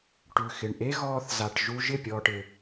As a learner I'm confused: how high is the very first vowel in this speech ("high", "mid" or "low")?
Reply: high